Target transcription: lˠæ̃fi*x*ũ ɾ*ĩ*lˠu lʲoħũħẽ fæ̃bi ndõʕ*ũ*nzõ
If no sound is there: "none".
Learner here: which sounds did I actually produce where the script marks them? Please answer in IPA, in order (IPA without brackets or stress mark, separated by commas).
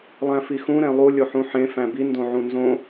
x, ẽ, ũ